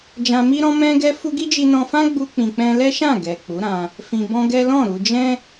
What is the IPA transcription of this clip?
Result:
d͡ʒ ã˧ m i˦ ɾ ɔ̃˦ m ɛ̃˦ ɡ ɛ˦ f u˦ ɡ i˦ d͡ʒ i˧ n ɔ̃˧ f ã˦ ɡ͡b u˦ k͡p ĩ˧ k͡p ɛ̃˦ l ɛ˦ ʃ ã˦˨ ɡ ɛ˨ k͡p u˨˦ ɾ ã˧ | f ĩ˧ b ɔ̃˦ ɡ ɛ˦ l ɔ̃˦˨ ɾ u˧ d͡ʒ ɛ̃˦

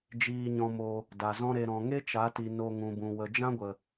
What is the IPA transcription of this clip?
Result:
d͡ʒ iː˧ ɲ ɔ̃˧ m o˧ | d a˨ z ɔ̃˦ ɾ e˧ ɾ ɔ̃˨ ŋ e˦ t͡ʃ a˨˦ t i˨ n o˧ ŋ ũ˨ b ũ˨ w ə˨ d͡ʒ ã˦ ɡʷ ə˨

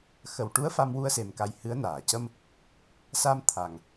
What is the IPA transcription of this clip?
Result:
x ə˨˩ w ʈ u˧˥ ə̯ f a˧ m w u˧ ə̯ s e˨˩ m k a˨˩ j h ɨ˧˥ ə̯ n aː˨˩˨ c ə˧ m | s a˧ m t̪ʰ a˨˩ ŋ

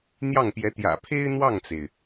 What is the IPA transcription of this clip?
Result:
n̪ j ɑ˥˩ ŋ p j ɛ˧˥ t̪ j ä̰˨˩ pʰ e˥ ɪ̯ n̪ w ɑ˥˩ ŋ t͡s e˩ ɪ̯

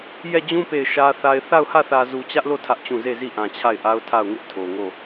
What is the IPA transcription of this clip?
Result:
j ɛ˦˨ d͡ʑ ũ˦ p e˦˨ ɪ̯ ʃ ä˦ θ a˦ ɪ̯ θ a˦˨ ʊ̯ h ä˦˨ θ ä˨ z u˨ t͡ɕ ä˦ ʔ l o˦˨ tʰ ä˦ ʔ t͡ɕ ũ˦˨ z e˦˨ z i˦˨ ʔ ã˨ t͡ɕʰ a˦˨ ɪ̯ ʔ a˦ ʊ̯ tʰ a˦˨ ʊ̯ ŋ ɪ˦ ʔ tʰ o˨ ŋ o˦˨

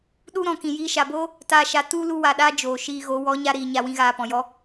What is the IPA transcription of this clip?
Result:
ɗ u˦ ɾ ɔ̃˨ k ĩ˨ j iː˧ ʃ a˨ b oː˦ | t aː˨ ʃ a˨ t u˧ l u˦ w a˨ ɗ aː˦ d͡ʒ oː˨ ʃ iː˧ ɣ o˨˦ w ɔ˨˦ ɲ a˧ ɾ iː˨ ɲ a˧ w ĩ˦ ɣ aː˧ p ɔ̃˨ j ɔ˦

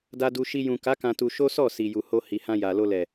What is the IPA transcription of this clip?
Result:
d a˧ d u˧ ʃ i˧ j ũ˨ k a˨˦ k ã˧ t u˧ ʃ o˦ s ɔ˦˨ s i˨ j u˨ h o˧ h i˨ h ã˧ j a˨ l o˧ l ɛ˨

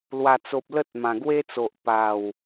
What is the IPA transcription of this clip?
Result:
l w a˨˩ t͡s o˨ p̚ l ə˦ t̚ m ã˨˩ ɡ w e˦ t͡s o˨ ʔ p a˨˩ w

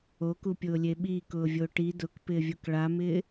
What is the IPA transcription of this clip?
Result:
o k u pʲ ʊː lʲ e ɓ i k ʊː vʲ o ʈ i d ʊ k p ɪː vʲ u k ɭ a m ɪː

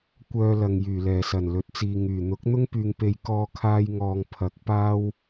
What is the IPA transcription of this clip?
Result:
kʷ œː˧ l ɐ˨ ŋ j yː˨˩ l ɛː˨˩ s ɐ˨˩ n l ɵ˨˥ t̚ t͡s iː˨ ŋ yː˨˩ n̪ ʊ˨˥ k̚ n̪ ʊ˥ ŋ p yː˨ ŋ p e˨ j k ɔː˧ kʰ aː˧ j ŋ ɔː˨ ŋ pʰ ɐ˨˥ k̚ p aː˥ w

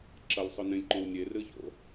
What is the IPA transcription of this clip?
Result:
ǁ ɐ lʲ sˤ ɵ n ẽ lʲ ǃ õ w nʲ e r ɨ ç o̰

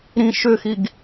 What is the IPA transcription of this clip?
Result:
ɾ ĩ ʃ ʏ x i ɡ

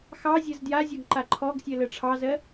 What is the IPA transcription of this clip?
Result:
x ɑ zʲ ɜ z d j a zʲ ɔ ɡ ǃ a ǃʰ ɔ ɡ sʲ ɜ l ɜ ʈ͡ʂʰ ɑ z ɜ

